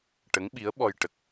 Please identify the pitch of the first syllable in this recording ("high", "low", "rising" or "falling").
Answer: rising